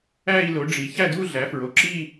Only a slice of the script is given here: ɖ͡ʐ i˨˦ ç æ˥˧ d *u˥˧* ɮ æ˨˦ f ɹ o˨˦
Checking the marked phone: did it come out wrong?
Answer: no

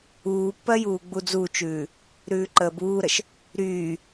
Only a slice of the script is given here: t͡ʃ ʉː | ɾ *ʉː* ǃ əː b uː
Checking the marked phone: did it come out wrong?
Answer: no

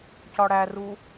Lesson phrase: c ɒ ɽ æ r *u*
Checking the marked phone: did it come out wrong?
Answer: no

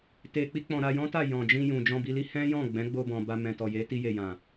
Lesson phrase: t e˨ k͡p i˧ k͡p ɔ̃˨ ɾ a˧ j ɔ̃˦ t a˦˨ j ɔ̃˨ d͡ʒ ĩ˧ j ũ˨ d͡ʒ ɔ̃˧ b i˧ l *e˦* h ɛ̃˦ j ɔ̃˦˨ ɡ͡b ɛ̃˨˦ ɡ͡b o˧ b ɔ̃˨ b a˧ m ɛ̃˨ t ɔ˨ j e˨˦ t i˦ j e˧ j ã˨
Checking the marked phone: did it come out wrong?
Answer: yes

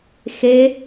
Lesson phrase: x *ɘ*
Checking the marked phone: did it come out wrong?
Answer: yes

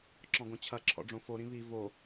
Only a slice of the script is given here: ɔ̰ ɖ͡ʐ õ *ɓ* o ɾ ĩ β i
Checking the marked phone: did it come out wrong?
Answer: yes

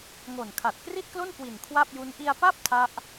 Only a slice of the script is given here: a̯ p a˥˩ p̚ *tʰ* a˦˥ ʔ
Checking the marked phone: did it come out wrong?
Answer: no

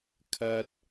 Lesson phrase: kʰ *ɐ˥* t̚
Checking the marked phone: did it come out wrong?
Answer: no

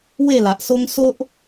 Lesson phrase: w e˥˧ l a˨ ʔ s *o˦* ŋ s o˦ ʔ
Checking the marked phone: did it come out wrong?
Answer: no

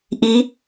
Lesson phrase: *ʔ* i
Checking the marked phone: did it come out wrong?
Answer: no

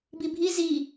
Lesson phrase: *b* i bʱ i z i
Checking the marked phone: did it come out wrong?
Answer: no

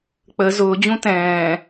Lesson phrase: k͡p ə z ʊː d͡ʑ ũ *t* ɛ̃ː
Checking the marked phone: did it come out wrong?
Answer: no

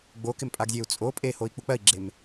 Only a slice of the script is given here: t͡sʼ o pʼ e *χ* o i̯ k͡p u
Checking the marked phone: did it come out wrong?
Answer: yes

